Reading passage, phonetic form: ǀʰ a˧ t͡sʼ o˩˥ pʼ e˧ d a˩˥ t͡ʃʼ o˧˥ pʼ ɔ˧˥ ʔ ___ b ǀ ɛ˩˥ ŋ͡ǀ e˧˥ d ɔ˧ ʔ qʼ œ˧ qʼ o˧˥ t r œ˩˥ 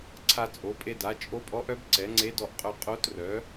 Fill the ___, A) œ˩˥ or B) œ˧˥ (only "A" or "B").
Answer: B